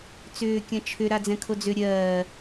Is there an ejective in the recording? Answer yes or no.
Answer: no